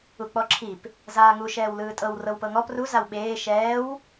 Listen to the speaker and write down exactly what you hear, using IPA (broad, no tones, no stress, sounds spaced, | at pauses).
u k͡p ɔ ǁʰ i p | z aː ŋ u ʃ ɛː w l ɯː tʼ ɤ w r ɤ w p ɤ ŋ ɔ p r u z a w ɓ eː ʃ ɛː w